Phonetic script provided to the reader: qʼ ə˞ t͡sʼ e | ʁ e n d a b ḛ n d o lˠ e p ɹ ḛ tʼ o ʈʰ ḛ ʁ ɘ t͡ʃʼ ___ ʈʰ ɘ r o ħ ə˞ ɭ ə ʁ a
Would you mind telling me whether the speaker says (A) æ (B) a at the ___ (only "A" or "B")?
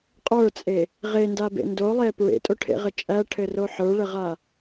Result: A